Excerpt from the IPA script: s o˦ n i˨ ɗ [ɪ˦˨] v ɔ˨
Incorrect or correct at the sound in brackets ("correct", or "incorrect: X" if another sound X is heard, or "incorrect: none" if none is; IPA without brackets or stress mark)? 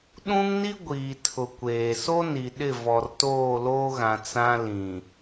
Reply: correct